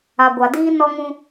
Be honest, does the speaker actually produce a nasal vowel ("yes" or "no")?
yes